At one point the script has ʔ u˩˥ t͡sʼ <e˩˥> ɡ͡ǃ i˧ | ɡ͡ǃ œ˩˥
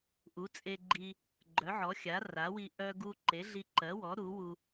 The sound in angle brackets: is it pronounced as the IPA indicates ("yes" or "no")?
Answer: no